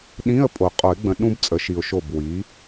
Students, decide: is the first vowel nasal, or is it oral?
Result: nasal